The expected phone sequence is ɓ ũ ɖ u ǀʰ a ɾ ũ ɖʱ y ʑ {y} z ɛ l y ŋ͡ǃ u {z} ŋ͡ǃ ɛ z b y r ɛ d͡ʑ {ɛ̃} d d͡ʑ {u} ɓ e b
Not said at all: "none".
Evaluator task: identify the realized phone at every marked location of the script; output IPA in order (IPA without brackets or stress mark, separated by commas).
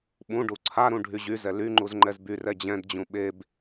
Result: y, z, ɛ̃, ũ